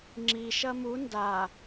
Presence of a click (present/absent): present